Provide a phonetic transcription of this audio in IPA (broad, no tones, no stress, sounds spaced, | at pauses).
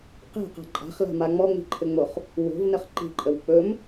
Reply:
q e̤ q a̤ ǃʼ a̤ χ l a̤ m a ŋ͡m ɔ ŋ͡m i̤ ǃʰ ɘ ŋ͡m o χ | w o̤ v n ə χ ǃ i̤ ǃʼ ə w k͡p ɵ m